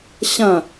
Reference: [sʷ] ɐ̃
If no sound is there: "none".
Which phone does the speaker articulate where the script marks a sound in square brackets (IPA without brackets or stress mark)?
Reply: ɕ